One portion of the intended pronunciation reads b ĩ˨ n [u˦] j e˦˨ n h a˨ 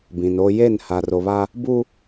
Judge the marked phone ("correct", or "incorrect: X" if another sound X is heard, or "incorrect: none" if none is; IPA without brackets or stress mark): incorrect: o˦